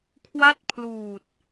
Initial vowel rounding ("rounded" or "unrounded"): unrounded